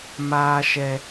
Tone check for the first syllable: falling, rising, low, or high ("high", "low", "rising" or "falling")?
high